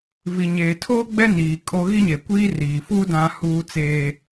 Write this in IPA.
v i˨ ɲ eː˨ tʰ oː˦ ɡ͡b ɛ˦ n iː˨ kʼ o˦ ɣ i˦ ɲ e˨ kʷ iː˦ r iː˨ f u˦ d ã˦ h uː˦ t͡s eː˦

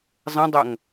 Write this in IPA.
zˤ ə̃ dˤ ʌ ŋ

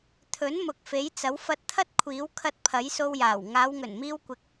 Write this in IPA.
t̪ʰ ɵ˨˥ n m ʊ˨ k̚ f e˨˥ j t͡s ɐ˨˥ w f ɐ˧ t̚ t̪ʰ ɐ˥ t̚ kʷʰ iː˨˥ w kʰ ɐ˧ t̚ pʰ ɐ˨˥ j s o˧ w j aː˨˩ w ŋ aː˨˧ w ŋ ɵ˨˩ n m iː˧ w kʷ ɪ˨ k̚

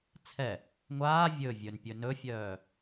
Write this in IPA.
t͡sʰ ɛ | ŋʷ aː vʲ ɵ vʲ ɵ n pʲ ɵ n ɵ fʲ œː

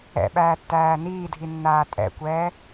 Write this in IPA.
ɛ̰ ɓ æː tː æː n iː dʱ i nː aː tʼ ɛ̰ kʷ ɛː

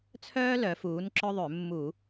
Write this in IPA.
t͡sʰ œː˥ l œ˨˥ f uː˨˥ n ǁ œ˥ ðˤ ʏ˧˩˧ mː u˧˩˧

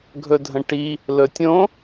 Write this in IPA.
ɡʱ ɵ dʱ ə̃ ʈ i | l ɵ tʲ õ

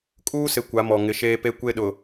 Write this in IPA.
kʼ uː˦ s ɪ˨ kʷ a˨˦ m ɔ˨ ŋ ɪ˨˦ ʃ eː˦ p e˦ kʷ e˦ ɗ ʊ˨

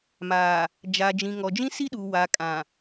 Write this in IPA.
m a˨ | d͡ʒ a˨ d͡ʒ ĩ˨ ŋ ɔ˨ d͡ʒ ĩ˦ s i˦ ɗ u˨ w a˨ kʼ ã˨

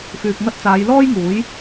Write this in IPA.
f yː˨ k̚ ŋ ɐ˧ t̚ t͡s aː˨˧ j l ɔː˥ j ŋ uː˨˥ j

